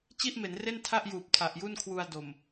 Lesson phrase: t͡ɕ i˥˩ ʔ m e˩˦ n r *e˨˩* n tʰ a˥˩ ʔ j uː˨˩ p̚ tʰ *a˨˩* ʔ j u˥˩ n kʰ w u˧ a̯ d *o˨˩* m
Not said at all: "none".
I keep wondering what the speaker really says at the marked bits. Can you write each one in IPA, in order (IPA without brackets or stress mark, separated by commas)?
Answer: e˥˩, a˨˩, o˨˩